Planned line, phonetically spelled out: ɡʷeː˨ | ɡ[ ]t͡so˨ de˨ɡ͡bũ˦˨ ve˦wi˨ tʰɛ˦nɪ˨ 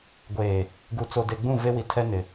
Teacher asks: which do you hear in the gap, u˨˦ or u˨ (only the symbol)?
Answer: u˨